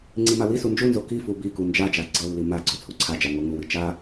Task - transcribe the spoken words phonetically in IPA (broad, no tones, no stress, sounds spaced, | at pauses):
ŋ͡ǀ i m a w i s u n d͡ʒ u n z o k i f u b i k u n d͡ʒ a d͡ʒ a ɡ͡ǀ ɤ lː i m a ɡ͡ǀ o t͡sʰ u ǀʰ a d͡ʒ a ŋ o ŋ u w i t͡ʃ a